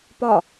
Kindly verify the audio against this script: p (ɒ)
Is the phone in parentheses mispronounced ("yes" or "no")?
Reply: no